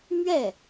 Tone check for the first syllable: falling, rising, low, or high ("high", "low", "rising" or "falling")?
falling